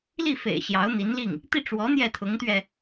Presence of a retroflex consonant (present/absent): present